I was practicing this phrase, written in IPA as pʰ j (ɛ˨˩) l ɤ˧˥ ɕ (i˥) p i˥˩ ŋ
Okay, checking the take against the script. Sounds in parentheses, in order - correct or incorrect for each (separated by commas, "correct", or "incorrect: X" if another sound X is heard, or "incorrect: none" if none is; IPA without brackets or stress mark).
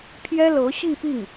incorrect: ɛ˥, incorrect: i˥˧